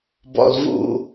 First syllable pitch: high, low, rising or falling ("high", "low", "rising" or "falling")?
low